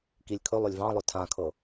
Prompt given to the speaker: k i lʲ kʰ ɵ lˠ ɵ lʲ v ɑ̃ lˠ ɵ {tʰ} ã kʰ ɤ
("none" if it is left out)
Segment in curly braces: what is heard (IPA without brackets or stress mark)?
tʰ